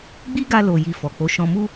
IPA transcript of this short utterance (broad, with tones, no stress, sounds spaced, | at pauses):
ɡ͡b i˦ ɡ a˧ l o˨ j i˨ f ɔ˨ k͡p o˨˦ ʃ ɔ̃˧ m u˦